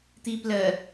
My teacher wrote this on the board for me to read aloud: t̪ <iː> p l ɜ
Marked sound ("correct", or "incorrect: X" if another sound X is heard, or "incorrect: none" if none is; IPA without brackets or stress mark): correct